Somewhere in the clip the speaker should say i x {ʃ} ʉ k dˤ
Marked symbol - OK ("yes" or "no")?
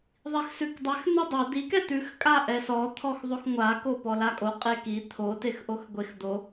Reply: no